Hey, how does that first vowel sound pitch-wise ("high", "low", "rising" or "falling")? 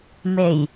low